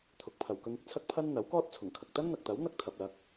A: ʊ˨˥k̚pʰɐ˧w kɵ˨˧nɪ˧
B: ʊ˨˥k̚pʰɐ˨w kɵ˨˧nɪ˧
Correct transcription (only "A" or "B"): B